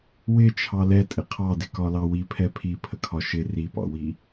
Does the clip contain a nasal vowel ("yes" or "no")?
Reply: no